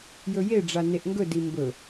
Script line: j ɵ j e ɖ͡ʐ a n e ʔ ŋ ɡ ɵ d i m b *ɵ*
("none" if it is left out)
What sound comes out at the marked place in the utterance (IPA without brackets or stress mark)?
ɵ